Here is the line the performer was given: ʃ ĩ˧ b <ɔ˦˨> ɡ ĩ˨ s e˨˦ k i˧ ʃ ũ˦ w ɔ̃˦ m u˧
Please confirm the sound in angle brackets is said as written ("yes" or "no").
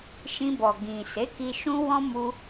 no